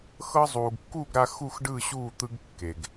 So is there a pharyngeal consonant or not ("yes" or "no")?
no